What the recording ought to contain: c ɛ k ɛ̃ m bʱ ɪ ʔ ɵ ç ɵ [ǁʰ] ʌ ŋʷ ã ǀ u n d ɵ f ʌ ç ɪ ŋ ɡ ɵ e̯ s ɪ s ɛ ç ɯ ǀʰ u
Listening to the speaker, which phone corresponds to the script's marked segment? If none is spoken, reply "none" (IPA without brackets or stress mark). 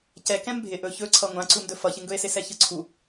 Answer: ǀʰ